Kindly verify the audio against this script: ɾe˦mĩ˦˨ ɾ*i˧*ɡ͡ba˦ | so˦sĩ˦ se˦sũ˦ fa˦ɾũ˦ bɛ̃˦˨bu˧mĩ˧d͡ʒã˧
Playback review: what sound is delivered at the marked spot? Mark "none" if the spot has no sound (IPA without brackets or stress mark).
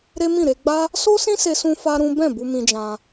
e˧